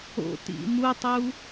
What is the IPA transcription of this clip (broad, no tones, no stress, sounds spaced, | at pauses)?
o̰ t ḭ m u tˤ u